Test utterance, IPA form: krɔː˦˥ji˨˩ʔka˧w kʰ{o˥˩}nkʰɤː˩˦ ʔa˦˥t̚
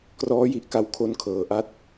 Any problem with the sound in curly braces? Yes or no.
yes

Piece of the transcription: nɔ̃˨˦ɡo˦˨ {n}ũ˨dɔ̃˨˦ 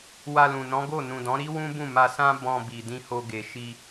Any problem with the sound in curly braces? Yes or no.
no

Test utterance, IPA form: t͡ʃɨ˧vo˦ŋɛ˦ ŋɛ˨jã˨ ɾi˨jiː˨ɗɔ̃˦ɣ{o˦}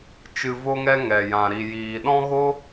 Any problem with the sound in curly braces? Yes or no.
no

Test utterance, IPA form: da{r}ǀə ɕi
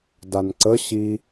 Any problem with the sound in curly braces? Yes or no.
yes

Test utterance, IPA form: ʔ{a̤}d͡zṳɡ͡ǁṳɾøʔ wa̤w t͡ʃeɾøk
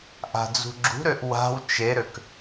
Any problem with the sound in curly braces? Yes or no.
no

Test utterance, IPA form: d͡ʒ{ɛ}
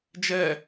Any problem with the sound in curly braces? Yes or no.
no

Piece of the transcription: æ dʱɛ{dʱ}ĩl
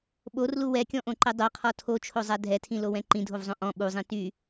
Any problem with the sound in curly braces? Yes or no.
yes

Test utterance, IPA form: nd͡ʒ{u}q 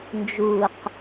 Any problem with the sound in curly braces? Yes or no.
no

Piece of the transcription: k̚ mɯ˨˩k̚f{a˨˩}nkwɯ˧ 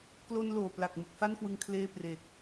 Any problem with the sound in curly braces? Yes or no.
yes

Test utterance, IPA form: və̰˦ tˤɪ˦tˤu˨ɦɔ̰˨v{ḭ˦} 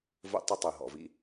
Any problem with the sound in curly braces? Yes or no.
no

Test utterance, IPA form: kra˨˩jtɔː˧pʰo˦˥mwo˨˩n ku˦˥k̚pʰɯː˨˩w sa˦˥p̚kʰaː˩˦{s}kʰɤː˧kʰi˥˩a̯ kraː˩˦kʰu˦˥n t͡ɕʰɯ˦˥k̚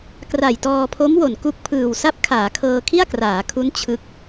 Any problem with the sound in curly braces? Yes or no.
yes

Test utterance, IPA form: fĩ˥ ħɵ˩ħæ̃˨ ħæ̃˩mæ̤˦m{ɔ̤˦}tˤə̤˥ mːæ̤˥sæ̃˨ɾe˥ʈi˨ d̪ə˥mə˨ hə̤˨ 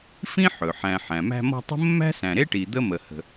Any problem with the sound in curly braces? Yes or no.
no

